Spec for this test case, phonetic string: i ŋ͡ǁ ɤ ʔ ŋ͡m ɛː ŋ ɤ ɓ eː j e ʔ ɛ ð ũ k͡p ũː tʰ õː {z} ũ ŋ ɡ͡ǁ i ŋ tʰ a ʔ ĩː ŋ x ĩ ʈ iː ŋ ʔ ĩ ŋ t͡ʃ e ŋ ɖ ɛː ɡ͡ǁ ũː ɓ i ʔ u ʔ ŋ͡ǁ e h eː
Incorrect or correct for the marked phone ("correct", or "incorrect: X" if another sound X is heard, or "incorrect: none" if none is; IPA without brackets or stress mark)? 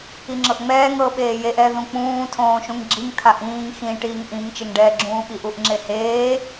incorrect: ʃ